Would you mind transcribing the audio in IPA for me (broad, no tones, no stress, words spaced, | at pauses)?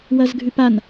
wɐzɡʱʉpan